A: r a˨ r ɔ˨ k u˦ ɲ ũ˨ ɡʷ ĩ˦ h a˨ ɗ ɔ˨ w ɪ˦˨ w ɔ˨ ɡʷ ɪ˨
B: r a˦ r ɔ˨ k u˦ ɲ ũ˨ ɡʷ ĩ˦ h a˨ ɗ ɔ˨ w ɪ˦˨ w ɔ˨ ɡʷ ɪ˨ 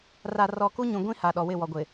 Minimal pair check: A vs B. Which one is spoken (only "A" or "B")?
A